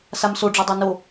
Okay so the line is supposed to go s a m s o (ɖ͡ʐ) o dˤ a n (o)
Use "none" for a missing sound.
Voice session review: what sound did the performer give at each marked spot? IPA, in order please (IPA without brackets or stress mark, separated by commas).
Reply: ɖ͡ʐ, o